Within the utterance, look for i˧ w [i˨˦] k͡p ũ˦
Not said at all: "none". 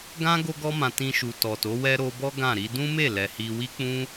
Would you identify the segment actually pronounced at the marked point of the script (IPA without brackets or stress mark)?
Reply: i˦